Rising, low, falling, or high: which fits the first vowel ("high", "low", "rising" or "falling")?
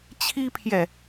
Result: high